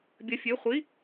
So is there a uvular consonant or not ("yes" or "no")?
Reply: yes